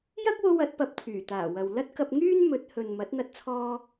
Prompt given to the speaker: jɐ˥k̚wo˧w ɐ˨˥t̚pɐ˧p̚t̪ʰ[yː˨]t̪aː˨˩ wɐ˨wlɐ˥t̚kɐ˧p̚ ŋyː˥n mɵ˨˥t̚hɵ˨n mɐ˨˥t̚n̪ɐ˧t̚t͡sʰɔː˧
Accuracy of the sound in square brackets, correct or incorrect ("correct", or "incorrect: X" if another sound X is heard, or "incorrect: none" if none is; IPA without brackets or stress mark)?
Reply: incorrect: yː˨˩